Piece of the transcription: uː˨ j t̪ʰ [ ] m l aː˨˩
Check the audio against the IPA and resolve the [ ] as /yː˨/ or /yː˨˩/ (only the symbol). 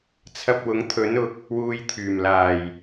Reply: yː˨˩